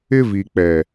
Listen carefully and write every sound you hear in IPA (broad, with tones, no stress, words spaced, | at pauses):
ɪ˦vi˨ k͡pɛ˨